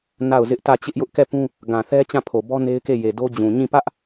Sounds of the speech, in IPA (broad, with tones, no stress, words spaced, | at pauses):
na˦˨ʊ̯zɪ˦ʔ tä˦˨ t͡ɕɪ˦ʔjʊ˦ʔkɛ˦˨pũ˦ | ɡã˨θɛ˦ t͡ɕã˦˨pʰo˨bɔ˦ ne˦ɪ̯ke˦˨ je˨do˦d͡ʑũ˨ ɲĩ˦˨ pä˦ʔ